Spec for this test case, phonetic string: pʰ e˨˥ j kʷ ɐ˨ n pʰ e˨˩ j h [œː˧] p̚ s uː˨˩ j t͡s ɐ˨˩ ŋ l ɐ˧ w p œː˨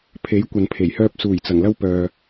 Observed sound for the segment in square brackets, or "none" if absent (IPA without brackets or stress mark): œː˧